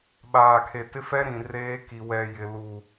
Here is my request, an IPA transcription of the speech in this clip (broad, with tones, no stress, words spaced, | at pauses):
ɓaː˨kʰe˨tɪ˦fɛ˦ ɾĩ˨reː˦ki˨ wɛ˨jɪ˨ lu˨